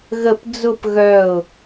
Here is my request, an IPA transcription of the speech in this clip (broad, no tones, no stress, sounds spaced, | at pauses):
ɣ ə p d͡z ʊ p ɣ œ ʊ̯